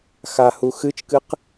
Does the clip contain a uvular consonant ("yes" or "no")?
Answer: yes